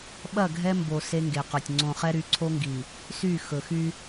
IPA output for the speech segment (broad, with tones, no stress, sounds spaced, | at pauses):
ɓ ɐ˦˨ ɡʱ ɛ˦ m b o˨ s e˦ ŋ ɡ e˨ q ɵ˨ tʲ ŋ͡ǀ õ˨ χ ɛ˦ ɾ y˨˦ ǀʰ o˦ ŋ ɡ i˨ | s y˦˨ x ɵ˨ x y˦